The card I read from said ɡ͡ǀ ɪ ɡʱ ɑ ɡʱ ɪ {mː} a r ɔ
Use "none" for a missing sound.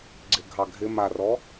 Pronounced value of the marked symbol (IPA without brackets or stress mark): m